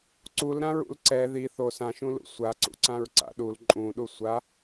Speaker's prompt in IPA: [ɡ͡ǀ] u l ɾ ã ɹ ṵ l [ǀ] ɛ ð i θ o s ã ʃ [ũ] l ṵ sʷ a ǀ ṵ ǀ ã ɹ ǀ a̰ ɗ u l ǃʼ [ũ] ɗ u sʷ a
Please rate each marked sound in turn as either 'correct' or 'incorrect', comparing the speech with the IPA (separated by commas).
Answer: incorrect, correct, correct, correct